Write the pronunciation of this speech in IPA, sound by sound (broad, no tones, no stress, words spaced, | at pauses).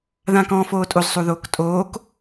ðãːkɔ̃ːfoːtʼoz sˤuðoːktʼoːk